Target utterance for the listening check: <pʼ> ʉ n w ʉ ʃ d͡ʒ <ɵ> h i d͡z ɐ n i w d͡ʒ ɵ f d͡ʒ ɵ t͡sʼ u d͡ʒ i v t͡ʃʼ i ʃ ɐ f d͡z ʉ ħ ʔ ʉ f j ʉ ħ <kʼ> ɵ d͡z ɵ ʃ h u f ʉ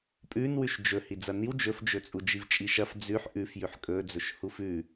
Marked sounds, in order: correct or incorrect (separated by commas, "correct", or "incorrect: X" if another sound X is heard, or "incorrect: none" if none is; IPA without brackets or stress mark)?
correct, correct, correct